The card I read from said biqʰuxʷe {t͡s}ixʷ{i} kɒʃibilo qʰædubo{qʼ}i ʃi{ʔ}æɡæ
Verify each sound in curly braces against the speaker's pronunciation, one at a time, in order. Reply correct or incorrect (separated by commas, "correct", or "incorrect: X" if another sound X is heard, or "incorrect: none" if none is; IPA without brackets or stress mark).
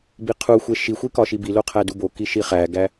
incorrect: ʃ, correct, incorrect: k, incorrect: χ